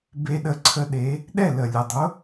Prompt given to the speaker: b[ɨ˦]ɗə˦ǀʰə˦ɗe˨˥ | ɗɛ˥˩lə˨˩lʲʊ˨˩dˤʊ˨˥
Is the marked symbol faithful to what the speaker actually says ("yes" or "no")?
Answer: no